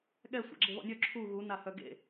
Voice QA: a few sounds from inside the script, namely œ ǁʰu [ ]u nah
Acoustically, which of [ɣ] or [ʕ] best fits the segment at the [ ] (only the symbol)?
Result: ɣ